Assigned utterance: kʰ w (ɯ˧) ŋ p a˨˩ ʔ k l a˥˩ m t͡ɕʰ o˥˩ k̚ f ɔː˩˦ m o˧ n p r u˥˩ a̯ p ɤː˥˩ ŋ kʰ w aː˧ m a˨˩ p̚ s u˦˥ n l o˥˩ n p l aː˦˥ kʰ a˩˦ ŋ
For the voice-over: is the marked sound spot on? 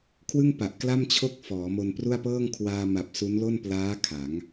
no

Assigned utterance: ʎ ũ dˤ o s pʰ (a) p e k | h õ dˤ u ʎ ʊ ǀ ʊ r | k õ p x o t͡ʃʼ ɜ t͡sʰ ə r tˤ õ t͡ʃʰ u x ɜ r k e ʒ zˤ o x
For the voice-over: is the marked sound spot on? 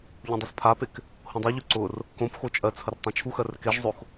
yes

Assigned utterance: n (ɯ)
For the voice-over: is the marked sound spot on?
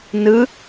yes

